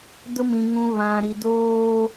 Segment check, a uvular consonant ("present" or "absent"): absent